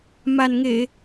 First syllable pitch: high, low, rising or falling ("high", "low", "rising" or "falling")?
low